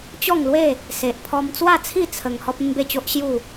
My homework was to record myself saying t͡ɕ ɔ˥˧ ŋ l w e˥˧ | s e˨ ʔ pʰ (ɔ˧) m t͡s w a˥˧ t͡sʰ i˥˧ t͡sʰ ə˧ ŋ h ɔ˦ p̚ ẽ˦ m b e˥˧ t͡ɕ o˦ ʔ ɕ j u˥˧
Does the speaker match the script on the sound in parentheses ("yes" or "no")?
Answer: yes